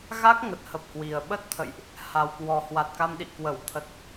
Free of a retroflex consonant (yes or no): yes